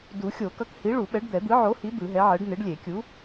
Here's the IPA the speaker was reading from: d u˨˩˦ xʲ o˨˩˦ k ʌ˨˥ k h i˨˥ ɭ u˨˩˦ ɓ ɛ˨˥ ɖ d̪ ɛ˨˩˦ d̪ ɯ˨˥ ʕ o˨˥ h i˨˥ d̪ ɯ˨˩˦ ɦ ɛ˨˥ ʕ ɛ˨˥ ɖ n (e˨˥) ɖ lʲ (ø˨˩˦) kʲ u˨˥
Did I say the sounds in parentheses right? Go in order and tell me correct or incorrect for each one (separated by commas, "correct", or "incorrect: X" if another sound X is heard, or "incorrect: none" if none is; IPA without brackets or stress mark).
correct, incorrect: e˨˩˦